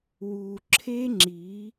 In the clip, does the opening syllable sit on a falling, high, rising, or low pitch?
low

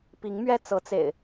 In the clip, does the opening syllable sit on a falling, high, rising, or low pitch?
rising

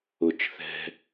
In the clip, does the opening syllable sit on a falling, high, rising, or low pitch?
low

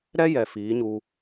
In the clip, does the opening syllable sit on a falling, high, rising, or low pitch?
high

